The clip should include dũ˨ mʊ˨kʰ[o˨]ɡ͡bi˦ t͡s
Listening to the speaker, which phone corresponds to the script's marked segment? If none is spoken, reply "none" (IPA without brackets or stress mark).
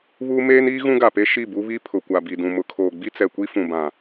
oː˨